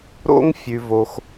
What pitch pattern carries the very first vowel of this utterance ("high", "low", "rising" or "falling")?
high